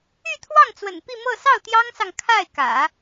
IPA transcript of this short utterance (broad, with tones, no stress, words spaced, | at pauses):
y˥˧t̪ʰwɑ˥˩ŋt͡swə̰˨˩n pi˥˧mɤ˥˧ sɑ˥˩ʊ̯t̪jɑ˥ŋsɑ˨ŋ kʰa˥˩ɪ̯kä̰˨˩˦